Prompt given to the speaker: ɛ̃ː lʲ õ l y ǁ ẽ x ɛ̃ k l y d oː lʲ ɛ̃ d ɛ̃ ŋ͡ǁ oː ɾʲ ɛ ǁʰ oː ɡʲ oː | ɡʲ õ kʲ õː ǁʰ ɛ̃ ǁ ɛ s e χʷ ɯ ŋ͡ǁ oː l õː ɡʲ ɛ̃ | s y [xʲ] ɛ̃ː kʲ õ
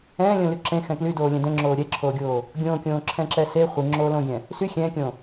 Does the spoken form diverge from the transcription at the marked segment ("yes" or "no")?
no